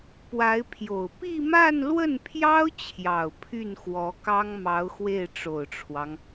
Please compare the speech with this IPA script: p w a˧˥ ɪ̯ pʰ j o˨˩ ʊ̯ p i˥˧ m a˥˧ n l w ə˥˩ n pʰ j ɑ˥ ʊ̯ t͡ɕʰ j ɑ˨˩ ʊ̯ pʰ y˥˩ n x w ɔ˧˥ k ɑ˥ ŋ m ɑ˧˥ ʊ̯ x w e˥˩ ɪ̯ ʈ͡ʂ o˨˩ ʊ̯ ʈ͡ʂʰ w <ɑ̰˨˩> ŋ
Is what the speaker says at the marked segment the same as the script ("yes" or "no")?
no